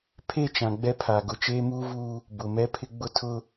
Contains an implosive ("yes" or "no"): no